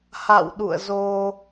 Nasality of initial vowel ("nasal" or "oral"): oral